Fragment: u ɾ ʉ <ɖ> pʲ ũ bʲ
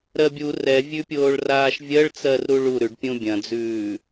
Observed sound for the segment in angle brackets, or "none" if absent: ɖ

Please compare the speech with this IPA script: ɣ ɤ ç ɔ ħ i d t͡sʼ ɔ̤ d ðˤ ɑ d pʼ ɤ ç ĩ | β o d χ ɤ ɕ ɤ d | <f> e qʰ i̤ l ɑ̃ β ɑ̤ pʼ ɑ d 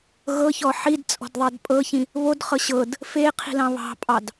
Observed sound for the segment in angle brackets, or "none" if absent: f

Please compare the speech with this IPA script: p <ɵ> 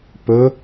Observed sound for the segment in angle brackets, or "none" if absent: ɵ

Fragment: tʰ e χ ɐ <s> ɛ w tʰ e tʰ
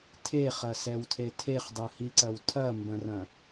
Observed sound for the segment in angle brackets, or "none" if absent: s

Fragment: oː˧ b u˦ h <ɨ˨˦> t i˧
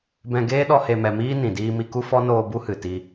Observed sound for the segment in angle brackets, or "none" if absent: ɨ˨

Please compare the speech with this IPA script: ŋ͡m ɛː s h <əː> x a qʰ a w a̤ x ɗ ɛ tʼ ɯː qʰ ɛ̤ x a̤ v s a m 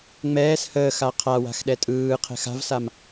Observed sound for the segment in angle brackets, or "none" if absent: əː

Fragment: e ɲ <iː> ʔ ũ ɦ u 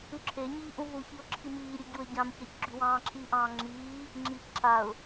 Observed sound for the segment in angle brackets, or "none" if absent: iː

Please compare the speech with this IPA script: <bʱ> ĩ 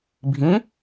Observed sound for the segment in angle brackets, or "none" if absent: bʱ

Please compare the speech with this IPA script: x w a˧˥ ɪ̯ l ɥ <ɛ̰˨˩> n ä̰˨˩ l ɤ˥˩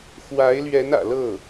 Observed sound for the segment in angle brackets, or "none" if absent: ɛ˧˥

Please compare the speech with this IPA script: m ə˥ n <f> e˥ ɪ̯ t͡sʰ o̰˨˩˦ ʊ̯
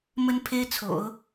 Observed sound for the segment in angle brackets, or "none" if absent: pʰ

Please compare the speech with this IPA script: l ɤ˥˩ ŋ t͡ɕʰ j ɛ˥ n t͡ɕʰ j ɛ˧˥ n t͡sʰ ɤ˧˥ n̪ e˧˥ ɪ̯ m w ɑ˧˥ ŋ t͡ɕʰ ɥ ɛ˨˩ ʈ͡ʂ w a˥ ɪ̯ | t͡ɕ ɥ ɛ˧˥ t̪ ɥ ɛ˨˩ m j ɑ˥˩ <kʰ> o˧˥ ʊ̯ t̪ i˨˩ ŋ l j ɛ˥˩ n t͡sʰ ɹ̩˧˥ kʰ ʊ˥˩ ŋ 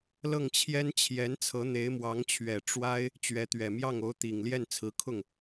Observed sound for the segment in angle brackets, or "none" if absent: ŋ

